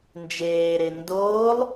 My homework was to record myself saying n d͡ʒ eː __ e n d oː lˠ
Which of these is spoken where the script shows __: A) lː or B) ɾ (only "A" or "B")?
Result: B